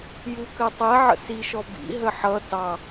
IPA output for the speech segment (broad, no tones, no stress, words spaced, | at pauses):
jukɜtˤɛ ʕə̰siʃɔ bḭ ɦəħʌ tɑ